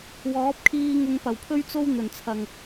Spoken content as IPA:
wɔː˨˥p̚kʰiː˧ ŋʊ˧ŋpɐ˨˩wpʰɵ˥ɥt͡so˥w n̪ɵ˨˩nt͡sʰɐ˨ŋ

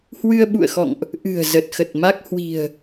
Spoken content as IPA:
hwɨ˧ə̯ɓṵ˧˨ə̯xɔ̰˧˨ŋʔ | ʔɨ̤˨˩ə̯zə˨˩t̚ xə˨˩t̚ ma˦˥k̚hwi̤˨˩ə̯

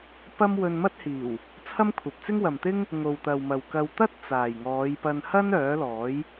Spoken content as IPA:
pɐ˥m wɵ˧nmɐ˥t̚hiː˨˩w | t͡sʰɐ˥mkʷʰɐ˨p̚t͡sɪ˥ŋ wɐ˨mt̪ɪ˥ŋ | ŋo˨wt̪ɐ˨wmɐ˨wkɐ˧w t̪ɐ˥t̚ t͡saː˨j ŋɔː˨˧jpɐ˧n hɐ˥n œː˨˥lɔː˨˥j

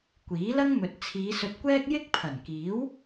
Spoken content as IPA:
kʷiː˨˥lɐ˥ŋ mɵ˨t̚ t͡sʰiː˨˧sɵ˧t̚kʷɛː˥k̚ jɪ˥k̚pʰɐ˨˩nkiː˨˥w

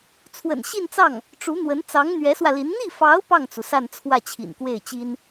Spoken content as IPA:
t͡sʰwə̰˨˩nɕi˥˧nt͡sɑ˥˩ŋ | ʈ͡ʂu˧˥n̪wə˧˥n t͡sɑ˧˥ŋn̪ɥɛ˧˥swä˧li˧˥n n̪i˥˩fɑ˧˥ʊ̯ pɑ˥˩ŋt͡su˩ sa˥˧n t͡sʰwä˥˩t͡ɕʰḭ˨˩nkwe˥˩ɪ̯t͡ɕi˥n

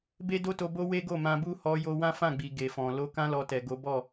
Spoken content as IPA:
be˦do˦to˧bo˦ we˦ɡo˦˨mã˧bu˦ hɔ˧ jo˧wã˦ fã˦˨ɡ͡bi˨ ɡe˨fɔ̃˨ lo˧kã˦lɔ˧tɛ˨ ɡo˨˦bɔ˦˨

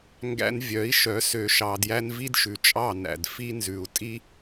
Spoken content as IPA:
ŋɡæ̰˧n vʲœ˨˦i̯ ʃœ˨˦ sø˨ʃɑ˨djæ˧n vi˦dʃʉ˨t͡ʃʼɑ˦˨næ̰˨d fi˦nzʉ˨u̯ tʼi˦

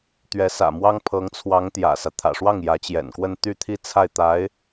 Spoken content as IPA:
t̪ɥɛ˧˥sä̰˨˩mwɑ˥ŋ pʰɤ˧˥ŋt͡sʰwɑ˧˥ŋ t̪jä̰˨˩sä˦ t̪ʰä̰˨˩ʂwɑ˥˩ŋ jä˧˥t͡ɕjɛ̰˨˩nkwə˥˧n t̪y˥˧t̪ʰi˥˧ t͡sʰa˥˩ɪ̯t̪a˧˥ɪ̯

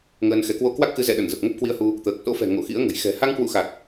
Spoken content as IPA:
ŋəː˧nxɛ˨˦ kwo˧kwa˦˥k̚xɨ˨˦ zɛ̰˧˨ɗə˧˩n zə˨˩p̚ŋə˦˥p̚kwi˧ə̯hu˧ | t̪əː˨˩k̚ so̰˧˥fɛ̤˨˩ ŋo̰˧˨xḭ˧˥ə̯ŋə̤˨˩j xɛ̤˨˩ ha˧ŋkwṵ˧˨xa˨˩k̚

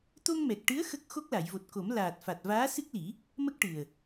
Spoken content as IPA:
t̪o˧ŋmɛ˨˩k̚ʈɨ˧˥ə̯ xə˦˥k̚ xo˦˥k̚la˨˩˨jvo˨˩t̚ko˨˩˦m laː˨˩t̚fa˨˩t̚ vaː˧˥ sɨ˦˥k̚li˨˩˦ | mə˦˥k̚ʈɨ˨˩ə̯

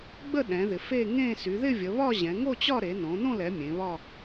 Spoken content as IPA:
ɡ͡bə˥˧ɗɛ̃˩˧ðɪ˩˧ fe˥˧ŋẽ˥˧ sy˩˧ðɪ˥˧vʲə˩˧βɒ˥˧ ʑɛ̃˩˧ŋo˥˧t͡ɕɒ˥˧ ɾe˩˧nõ˩˧ nõ˥˧lɛ˩˧ mʲẽ˩˧βɒ˥˧

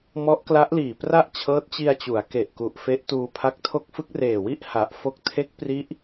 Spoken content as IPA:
mɔ˦˥ʔkla˦˥ʔliː˨˩ pra˥˩ʔt͡ɕʰɤː˦˥t̚t͡ɕi˧a̯t͡ɕu˩˦a̯ ke˨˩ʔku˨˩ʔ fe˦˥ʔtuː˧pʰa˦˥k̚ tʰo˦˥k̚fɯ˦˥k̚reː˨˩wi˥˩ʔ ha˨˩ʔ fo˦˥k̚tʰe˦˥k̚pri˦˥ʔ

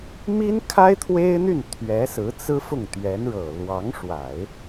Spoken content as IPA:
mi˥nkʰa˥ɪ̯ t̪ʰwe˥ɪ̯n̪y˥˩n t̪ʰɥɛ˧˥ sɹ̩˧˥t͡sɹ̩˥fʊ˥˩ŋ t̪ɥɛ˧˥nɻɤ˨˩ lwɑ˧˥ŋʂwa˨˩˦ɪ̯

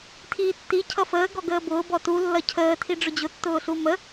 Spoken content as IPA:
tʰiːtːi cʰʌfəː ɡɔɡəːbʊː bɔtu lːʌcʰəː tʰiɖ͡ʐʊd͡ʑʊ tːʊːɬumə

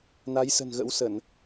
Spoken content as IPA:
na˨˦jsə̤˨˩nɣə̰˧˥w səː˧˩˨n

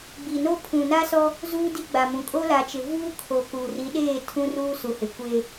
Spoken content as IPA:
ɡ͡bi˨no˦pʰũ˨ na˦sɔ˦ | zuː˦di˦ɡ͡ba˨mũ˨ kʼo˦la˨t͡ʃɪ˨vuː˦ kʰo˨ku˨ ri˨˦ɗeː˦˨ tʰũ˦ruː˦su˨hɪ˨ kʷe˦

